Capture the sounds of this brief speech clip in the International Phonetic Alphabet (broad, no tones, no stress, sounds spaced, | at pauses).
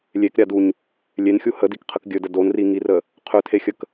lʲ e k ɾʲ a d u ɲ | lʲ e n xʲ u h ə d i k qʰ ə k ɡʲ ɵ d ə d o n r i ŋ i r ə | qʰ ɵ tʰ e xʲ ə k